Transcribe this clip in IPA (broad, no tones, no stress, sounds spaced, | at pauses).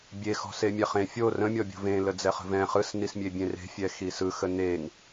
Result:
bʲ e x ɔ̤ s e mʲ ɛ χ ẽ fʲ o r ə̃ mʲ ɔ bʲ o̤ v ẽ l ə d͡z ɛ χ ə̤ v ɛ̃ χ ɯ s n i s mʲ e bʲ ẽ r e̤ fʲ ɛ x i s ɯ x ə n e ŋ